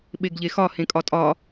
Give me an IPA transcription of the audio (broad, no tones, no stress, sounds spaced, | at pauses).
ɓ e ɡ ʎ e x ɒ h ẽ kʼ ɒ tʼ ɒ